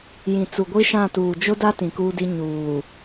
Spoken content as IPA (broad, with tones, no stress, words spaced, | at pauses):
jĩ˨ t͡su˨ɡʷi˦ʃã˦˨tuː˨ d͡ʒʊ˦da˦ tĩ˨kuː˦di˦ ɲuː˨